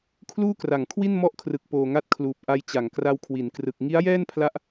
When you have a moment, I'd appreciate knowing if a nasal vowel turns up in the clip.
no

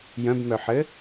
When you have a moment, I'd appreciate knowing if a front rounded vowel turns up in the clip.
yes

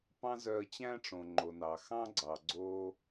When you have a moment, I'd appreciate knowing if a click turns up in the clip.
yes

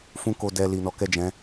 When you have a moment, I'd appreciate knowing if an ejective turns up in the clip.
no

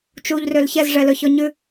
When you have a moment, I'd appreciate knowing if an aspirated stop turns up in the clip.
no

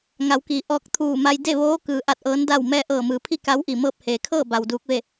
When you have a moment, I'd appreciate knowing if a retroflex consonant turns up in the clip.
no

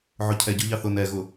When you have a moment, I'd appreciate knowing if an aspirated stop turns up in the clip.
yes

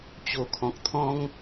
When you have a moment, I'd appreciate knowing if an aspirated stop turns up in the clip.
yes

